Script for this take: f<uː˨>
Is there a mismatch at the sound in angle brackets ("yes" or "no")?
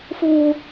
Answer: yes